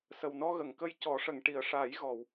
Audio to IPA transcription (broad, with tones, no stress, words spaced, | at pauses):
sə˨˩wnɔ˧ɣə˨˩˨ŋkə˧j cɔ˨˩˦ʂə˨˩˨ŋ ʈi˨˩ə̯ʂaː˨˩˦j ɣɔ˨˩˨w